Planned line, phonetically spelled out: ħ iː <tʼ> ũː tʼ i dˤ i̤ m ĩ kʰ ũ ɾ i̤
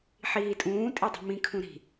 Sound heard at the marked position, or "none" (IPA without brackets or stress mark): tʼ